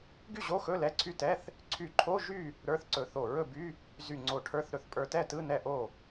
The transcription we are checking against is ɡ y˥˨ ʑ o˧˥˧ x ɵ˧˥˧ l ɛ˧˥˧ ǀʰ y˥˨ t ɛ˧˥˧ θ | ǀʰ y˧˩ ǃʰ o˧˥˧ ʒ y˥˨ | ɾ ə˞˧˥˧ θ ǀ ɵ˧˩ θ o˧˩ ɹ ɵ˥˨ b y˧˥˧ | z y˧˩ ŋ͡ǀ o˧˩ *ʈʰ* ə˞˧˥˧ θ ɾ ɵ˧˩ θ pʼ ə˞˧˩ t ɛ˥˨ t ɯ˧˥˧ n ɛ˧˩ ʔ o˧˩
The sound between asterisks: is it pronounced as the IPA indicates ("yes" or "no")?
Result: yes